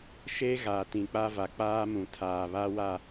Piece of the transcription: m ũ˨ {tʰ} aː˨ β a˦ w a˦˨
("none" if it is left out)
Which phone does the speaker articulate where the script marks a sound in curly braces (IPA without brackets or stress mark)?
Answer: tʰ